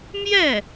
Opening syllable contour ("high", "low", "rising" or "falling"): falling